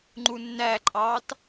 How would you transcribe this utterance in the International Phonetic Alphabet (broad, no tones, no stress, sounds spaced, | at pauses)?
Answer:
ŋ͡ǃ u nː æ ǃʼ ɑː t